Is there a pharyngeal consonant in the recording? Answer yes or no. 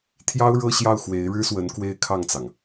no